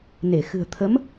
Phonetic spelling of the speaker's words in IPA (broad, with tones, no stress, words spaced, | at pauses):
ne˧˩ xɨ̤˨˩ə̯t̪ʰə˨˦m